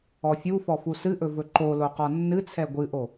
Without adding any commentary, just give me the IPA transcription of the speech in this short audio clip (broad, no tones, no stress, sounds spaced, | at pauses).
ɔ fʲ u f ɔ f u s ɨ ʔ ɵ v ɵ ǃ o l o q ɔ nː ɨ t͡sʰ ɛ ɡʷ ɨ ʔ o